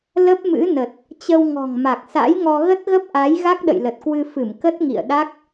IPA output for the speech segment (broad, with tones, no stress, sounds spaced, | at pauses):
l ə˦˥ p̚ m ɨ̰˧˥ n ə˨˩ t̚ | t͡ɕ ə˧ w ŋ ɔ̤˨˩ ŋ m a˨˩ k̚ s a̰˧˥ j ŋ ɔ˧ ɣ ə˦˥ t̚ ɣ ə˦˥ p̚ ʔ a˨˦ j ɣ a˦˥ k̚ ɗ ə̰˧˨ j l ə˨˩ t̚ k w ɨ˧ f ɨ˧˩ m k ə˦˥ t̚ ŋ ḭ˧˨ ə̯ ɗ a˦˥ k̚